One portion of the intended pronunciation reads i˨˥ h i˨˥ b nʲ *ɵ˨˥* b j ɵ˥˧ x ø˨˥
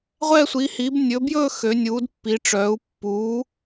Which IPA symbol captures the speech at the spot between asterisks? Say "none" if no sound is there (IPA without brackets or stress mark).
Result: ɵ˨˥